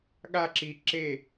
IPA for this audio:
ɠ a ǁ i ǁ e

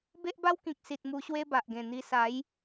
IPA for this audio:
b e˦ ʔ b a˦ w k ĩ˨ k̚ s i˨ t̚ m u˧ ɕ w e˦ b a˨ ʔ ɡ ẽ˨˩ n̪ i˧ s a˨˦ j

